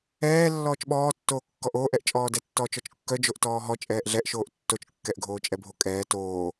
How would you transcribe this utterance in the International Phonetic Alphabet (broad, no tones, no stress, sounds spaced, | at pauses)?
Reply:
ɛː lː ɔː t͡ʃ ɓ ɔː tː oː kː ɔ ʔ oː ʔ ɛ ʔ t͡ʃʼ ɔː d ɛ tː ɔː t͡ʃ ɔ t͡ʃ kː œ d͡ʒ o ʔ t ɔː ɦ ɔ t͡ʃʼ ɛː ʔ ɮ ɛ ʔ ʃ oː ʔ tː o t͡ʃ kː ɛ ʔ ɡʱ oː t͡ʃʼ ɛ bʱ o kʼ ɛː t oː